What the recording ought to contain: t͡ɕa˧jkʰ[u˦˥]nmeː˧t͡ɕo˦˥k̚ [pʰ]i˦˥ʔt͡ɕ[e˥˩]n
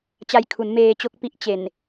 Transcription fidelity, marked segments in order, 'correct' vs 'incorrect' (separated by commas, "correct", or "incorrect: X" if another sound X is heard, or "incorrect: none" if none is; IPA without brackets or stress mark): incorrect: u˩˦, incorrect: p, incorrect: e˨˩